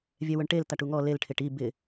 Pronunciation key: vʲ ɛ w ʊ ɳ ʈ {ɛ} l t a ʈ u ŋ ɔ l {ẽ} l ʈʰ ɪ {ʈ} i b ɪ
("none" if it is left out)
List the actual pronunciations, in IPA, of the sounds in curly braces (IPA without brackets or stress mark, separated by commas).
e, e, ʈ